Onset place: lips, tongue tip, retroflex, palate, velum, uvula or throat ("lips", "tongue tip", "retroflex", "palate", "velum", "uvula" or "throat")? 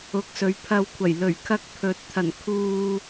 velum